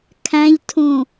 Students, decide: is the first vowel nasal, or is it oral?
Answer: nasal